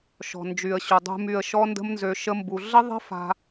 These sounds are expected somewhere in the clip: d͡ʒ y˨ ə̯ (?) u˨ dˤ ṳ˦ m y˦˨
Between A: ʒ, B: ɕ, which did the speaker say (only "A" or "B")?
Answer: B